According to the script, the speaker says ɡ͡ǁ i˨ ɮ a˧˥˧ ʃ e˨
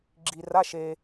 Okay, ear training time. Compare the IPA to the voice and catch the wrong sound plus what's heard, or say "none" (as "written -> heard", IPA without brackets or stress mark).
ɮ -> r